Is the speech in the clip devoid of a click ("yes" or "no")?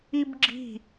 no